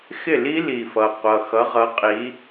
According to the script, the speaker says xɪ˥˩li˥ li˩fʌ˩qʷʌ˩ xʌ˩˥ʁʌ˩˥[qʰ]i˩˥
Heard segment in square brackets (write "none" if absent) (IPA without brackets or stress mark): qʼ